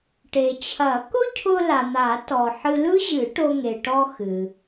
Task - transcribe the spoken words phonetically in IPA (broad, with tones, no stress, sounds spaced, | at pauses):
ʈ e˩ t͡ɕʰ ɐ˨˩˦ k ʊ˥ cʰ ʊ˧ l a˩ n̪ a˨˩˦ t ɔ˩ ħ ɨ˧ l ɯ˥ ʑ ɨ˨˩˦ ʈ o˧ ŋ e˩ ʈ ɔ˧ x ɨ˩